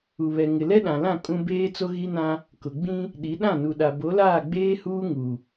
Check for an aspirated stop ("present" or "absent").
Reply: absent